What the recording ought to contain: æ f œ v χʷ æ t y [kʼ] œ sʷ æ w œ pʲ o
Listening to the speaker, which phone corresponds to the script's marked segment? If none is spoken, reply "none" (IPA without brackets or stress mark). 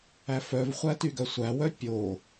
ɡ